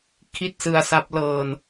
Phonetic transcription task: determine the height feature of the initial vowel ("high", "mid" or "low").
high